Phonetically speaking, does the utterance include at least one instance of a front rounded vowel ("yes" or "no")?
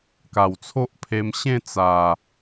no